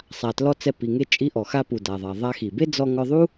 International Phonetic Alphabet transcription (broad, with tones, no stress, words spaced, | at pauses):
sˤa˩tlɔ˧ t͡sɛ˧pi˩ŋe˥ t͡ʃʼi˧ʔɔ˩xa˧pu˩ da˩ðˤa˩ ðˤa˧xi˩ be˥d͡zɔ˧ ŋɔ˧ðˤu˥